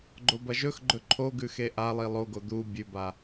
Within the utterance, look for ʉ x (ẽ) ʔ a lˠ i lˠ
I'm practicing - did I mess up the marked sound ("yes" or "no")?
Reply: yes